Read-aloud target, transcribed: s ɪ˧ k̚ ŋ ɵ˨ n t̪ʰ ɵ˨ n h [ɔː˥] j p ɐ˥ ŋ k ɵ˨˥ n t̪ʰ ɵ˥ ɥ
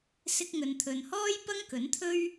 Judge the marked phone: correct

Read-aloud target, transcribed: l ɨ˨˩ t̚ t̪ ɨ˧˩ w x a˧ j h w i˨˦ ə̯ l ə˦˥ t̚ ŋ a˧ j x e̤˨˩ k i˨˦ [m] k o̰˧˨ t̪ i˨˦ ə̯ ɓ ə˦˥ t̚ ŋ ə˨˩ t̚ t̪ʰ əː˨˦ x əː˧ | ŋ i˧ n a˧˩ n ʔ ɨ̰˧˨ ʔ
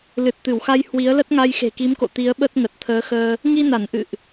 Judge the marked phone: correct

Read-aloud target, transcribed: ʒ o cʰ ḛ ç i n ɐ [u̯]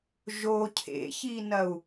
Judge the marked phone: correct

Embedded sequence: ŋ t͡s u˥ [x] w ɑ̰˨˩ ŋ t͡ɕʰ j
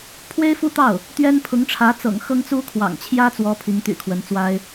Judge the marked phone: incorrect: kʰ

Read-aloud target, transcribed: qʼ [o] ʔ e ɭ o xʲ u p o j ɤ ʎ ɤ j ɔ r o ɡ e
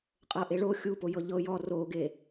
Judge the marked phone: incorrect: ɤ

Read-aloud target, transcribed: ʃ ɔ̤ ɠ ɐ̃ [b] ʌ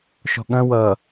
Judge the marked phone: incorrect: w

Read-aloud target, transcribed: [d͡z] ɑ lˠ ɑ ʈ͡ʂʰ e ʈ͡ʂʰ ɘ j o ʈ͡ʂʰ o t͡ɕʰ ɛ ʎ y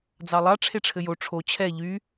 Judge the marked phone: correct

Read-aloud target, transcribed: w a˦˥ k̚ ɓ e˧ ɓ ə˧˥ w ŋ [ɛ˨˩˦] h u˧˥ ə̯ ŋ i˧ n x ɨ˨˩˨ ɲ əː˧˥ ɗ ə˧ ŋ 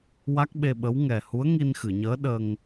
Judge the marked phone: incorrect: ɛ˨˩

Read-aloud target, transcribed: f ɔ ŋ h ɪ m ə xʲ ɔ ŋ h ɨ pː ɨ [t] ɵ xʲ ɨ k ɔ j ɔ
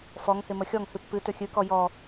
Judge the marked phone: correct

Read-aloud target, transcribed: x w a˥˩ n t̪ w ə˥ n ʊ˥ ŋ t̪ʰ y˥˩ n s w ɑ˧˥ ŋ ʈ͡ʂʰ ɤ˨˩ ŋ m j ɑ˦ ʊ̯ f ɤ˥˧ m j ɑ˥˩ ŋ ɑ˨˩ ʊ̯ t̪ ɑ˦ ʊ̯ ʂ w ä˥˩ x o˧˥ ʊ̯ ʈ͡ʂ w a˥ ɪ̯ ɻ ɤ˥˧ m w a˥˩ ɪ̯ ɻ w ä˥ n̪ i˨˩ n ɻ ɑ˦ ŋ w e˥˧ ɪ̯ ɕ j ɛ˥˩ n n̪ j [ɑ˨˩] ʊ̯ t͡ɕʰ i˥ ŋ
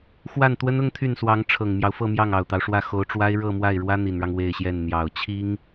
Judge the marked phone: correct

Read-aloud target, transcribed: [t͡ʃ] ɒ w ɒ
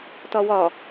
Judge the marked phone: incorrect: t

